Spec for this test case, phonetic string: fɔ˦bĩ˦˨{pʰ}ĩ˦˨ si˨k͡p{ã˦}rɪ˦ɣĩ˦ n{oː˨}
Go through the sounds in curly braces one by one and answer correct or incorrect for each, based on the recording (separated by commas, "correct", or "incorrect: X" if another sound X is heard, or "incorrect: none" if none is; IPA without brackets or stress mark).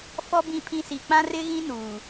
correct, correct, incorrect: uː˨